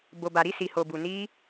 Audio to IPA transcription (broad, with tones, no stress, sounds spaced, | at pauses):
b o˧ b a˧ ɾ i˦ s i˧ h o˧ b u˧ n i˦